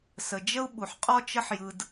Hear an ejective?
yes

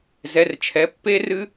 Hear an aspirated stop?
yes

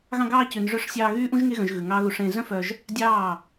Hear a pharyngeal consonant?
no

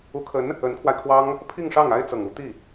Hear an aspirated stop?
yes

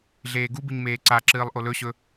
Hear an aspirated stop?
no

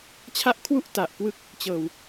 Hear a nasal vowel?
no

